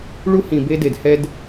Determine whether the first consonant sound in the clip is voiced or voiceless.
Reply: voiced